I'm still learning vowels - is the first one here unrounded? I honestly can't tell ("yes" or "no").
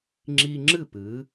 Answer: yes